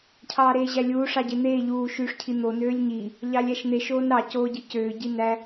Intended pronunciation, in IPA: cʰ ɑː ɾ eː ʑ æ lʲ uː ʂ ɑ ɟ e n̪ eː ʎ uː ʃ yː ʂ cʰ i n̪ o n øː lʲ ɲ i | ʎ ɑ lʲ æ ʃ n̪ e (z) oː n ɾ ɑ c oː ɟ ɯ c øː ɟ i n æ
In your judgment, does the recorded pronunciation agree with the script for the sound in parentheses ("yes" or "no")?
no